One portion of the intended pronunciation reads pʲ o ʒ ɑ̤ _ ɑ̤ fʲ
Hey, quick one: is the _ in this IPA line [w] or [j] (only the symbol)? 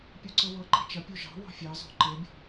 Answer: w